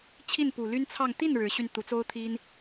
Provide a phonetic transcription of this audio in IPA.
t͡ɕʰ i˥˩ n p u˨˩ l y˥ n t͡sʰ ɑ˥˧ ŋ t̪ i˥˩ n ɻ ɻ̩˧˥ ɕ y˧ n t̪ u˧˥ t͡s o˥ ʊ̯ t̪ʰ i˥ n

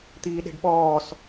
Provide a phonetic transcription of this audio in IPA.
t̪ iː ɗ e̤ ɖ ɓ ɔː s

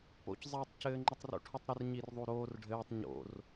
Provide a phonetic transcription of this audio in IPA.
p o̰ c zˤ eː tˤ c ɘː ŋ͡ǃ ɘ tˤ r o̰ ʈʰ u tˤ ɾ ə r ɲ i r ðˤ u ɾ oː r ɖʱ ɘː tˤ ɲ o̰ r

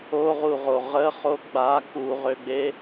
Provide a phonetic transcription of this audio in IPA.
o ʁ u ʁ o ʁ ə χ o ɡ͡b a k u ʁ ø ɡ͡b e

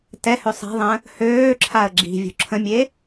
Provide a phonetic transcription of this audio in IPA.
t ɛ h ø sˤ ɛ̤ ðˤ ə̃ | h øː ǁʰ a ə̯ ɡ͡ǁ i̤ vʲ ṳ ǁʰ ə̃ mʲ e

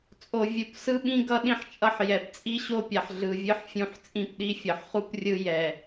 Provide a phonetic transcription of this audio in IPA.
t͡sʼ o˨ vʲ u˨ p s ɯ˦ ɓ ĩ˦ ɡ ʌ˦ ɗ ĩ˦ ħ t͡ʃʼ ʌ˦ ħ j ɛ˨ p t͡sʼ i˦ ɕ o˦ pʲ a˨ ħ ɮ ɯ˨ vʲ ɯ˦ ħ fʲ ũ˦˨ ħ t͡sʼ ĩ˦ p ɗ i˦ fʲ ʌ˨ ħ χ u˦ p rʲ ɯ˦ j ɛ˨

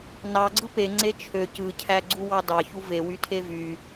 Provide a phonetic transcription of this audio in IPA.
n ɑ ɡ͡ǀ ɯ p e ŋ͡ǀ e t͡ʃʰ ø c ɯ cʰ æ ɡ͡ǀ u w ɑ d ɑ ç u v e w y tʰ e v y

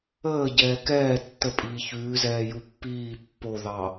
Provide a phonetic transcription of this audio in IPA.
əː ɟ ɛː k ɛː tː ə pʼ iː ç ʉː z ɛː j u pː iː pː o ð ɑ

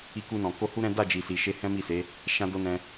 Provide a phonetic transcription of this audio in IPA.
i˧ k u˧ n ɔ̃˨ k o˧ h u˦ ɾ ɛ̃˦ d a˦˨ d͡ʒ i˨ s i˨ ʃ e˧ h ɛ̃˦ m i˦˨ s e˨˦ | ʃ ã˧ d o˧ n ɛ̃˧

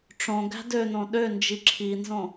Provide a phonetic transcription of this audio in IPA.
ʈ͡ʂ õ ɡ æ̤ d ø n õ ɗ ø n d͡ʒ i ǁʰ i n z õ

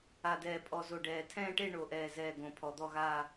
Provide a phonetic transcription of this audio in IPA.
a˨˩ d ɛː˨˩ pʼ ɔ˨˩ z o˨˩ ɖ ɛː˨˩ tʰ ɛ̃ː˥˧ ʈ e˥˧ ɳ o˨˩ ʔ ɛː˨˩ z ɛː˨˩ ɡ õ˨˩ pʰ ɔ˨˩ d̪ ɔ˥˧ ɣ aː˥˧

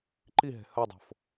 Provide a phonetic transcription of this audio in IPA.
ǃ i ɦ e̤ h ɐ dˤ o̤ f

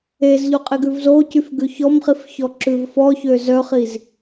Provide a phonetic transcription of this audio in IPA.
e z ʎ o qʼ e ɡ ʉ v z o c y f ɡ ʉ ç ɔ m χ i f ç ɔ ǁ ʉ v f ɔ ç ø z œ χ i z

